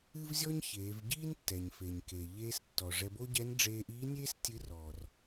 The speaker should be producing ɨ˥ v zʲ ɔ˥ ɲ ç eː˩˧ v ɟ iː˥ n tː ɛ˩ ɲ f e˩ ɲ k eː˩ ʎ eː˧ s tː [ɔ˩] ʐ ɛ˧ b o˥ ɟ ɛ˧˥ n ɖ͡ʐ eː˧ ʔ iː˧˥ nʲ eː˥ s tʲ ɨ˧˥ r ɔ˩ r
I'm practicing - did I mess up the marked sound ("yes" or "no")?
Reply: no